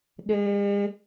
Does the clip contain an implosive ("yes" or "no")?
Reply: yes